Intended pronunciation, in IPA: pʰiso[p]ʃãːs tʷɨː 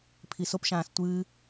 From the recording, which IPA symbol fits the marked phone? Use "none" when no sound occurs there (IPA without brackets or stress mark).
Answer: p